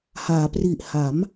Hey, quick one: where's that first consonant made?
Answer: throat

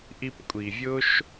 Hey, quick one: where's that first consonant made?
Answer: throat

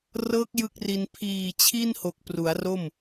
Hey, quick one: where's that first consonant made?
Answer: tongue tip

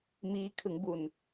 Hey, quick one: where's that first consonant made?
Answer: lips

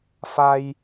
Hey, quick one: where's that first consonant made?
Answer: lips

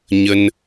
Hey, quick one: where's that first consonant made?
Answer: palate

